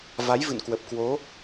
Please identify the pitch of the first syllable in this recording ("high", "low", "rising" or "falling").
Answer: rising